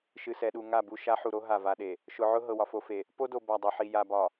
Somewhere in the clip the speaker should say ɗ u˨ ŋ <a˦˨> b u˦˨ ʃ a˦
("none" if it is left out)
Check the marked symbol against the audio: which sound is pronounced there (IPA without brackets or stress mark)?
a˦˨